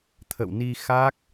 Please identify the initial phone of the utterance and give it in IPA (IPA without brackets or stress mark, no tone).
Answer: t̪ʰ